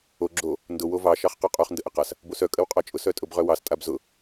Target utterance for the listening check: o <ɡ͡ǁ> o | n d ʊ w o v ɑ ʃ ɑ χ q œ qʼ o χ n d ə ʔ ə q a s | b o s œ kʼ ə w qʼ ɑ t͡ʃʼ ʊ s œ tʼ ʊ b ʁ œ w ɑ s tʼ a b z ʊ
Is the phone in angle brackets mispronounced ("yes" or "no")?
no